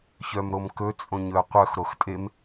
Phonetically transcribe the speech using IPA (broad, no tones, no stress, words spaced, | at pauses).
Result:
çœmɾomkɵ t͡sʼõɲɵɐ̯qʷœx ɾoxtʼem